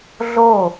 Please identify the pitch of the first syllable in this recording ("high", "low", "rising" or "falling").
falling